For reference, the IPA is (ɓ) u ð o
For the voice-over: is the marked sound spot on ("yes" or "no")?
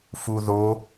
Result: no